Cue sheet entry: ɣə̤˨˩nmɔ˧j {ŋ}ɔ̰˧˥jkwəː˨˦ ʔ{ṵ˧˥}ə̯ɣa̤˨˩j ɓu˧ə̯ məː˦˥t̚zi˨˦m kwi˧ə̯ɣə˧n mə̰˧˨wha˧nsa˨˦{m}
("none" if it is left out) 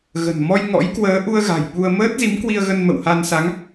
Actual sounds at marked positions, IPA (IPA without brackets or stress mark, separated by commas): ŋ, u˧, ŋ